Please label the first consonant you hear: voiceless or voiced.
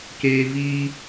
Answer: voiceless